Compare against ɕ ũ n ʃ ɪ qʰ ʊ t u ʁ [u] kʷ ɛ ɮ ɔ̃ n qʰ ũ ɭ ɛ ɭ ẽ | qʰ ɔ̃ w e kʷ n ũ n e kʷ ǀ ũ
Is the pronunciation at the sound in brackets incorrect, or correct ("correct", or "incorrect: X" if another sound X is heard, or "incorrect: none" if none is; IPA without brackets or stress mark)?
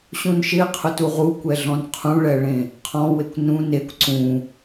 correct